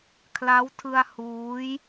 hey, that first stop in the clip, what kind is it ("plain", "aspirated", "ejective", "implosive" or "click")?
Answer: aspirated